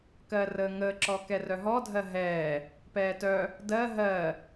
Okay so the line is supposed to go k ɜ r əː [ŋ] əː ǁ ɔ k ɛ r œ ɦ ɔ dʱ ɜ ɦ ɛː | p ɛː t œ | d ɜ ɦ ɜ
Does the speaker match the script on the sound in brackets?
yes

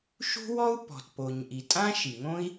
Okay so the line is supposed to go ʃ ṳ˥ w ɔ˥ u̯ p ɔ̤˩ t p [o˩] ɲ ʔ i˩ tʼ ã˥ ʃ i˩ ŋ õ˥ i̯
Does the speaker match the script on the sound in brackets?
yes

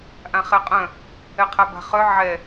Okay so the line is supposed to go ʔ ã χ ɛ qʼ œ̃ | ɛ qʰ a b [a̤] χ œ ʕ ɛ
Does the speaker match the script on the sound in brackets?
yes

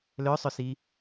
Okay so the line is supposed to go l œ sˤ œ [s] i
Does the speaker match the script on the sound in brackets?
yes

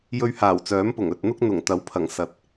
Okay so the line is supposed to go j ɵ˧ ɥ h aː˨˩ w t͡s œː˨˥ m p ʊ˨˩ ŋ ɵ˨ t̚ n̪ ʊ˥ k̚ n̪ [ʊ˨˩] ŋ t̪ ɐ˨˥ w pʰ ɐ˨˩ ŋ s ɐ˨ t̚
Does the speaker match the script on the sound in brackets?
yes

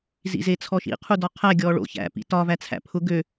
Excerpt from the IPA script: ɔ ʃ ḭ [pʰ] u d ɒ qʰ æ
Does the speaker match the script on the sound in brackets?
no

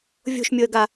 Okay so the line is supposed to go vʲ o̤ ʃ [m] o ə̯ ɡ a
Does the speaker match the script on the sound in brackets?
no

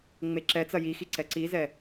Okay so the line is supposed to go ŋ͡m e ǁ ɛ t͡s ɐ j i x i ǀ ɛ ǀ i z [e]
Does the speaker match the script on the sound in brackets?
no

